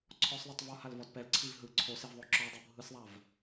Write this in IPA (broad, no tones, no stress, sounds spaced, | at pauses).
ǀʰ ɔ sˤ ðˤ i tˤ v ɔ h a l v ɔ d p ɛ l ǀʰ i v ɦ ɯ ǀʰ o s e v ðˤ o ǁ ɔ dˤ u bʱ ɯ s ðˤ a v